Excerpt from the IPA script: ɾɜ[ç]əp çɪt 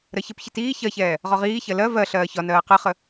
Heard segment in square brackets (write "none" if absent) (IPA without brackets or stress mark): ç